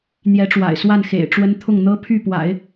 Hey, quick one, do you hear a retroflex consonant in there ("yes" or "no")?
yes